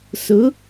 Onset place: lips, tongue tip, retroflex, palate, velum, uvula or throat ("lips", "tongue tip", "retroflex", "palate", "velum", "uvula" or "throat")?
tongue tip